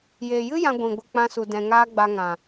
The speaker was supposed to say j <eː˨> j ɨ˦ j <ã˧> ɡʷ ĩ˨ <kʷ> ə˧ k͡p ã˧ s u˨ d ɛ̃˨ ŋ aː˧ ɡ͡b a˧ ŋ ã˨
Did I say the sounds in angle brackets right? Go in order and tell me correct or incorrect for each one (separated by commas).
correct, correct, incorrect